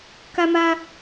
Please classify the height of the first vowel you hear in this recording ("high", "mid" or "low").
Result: low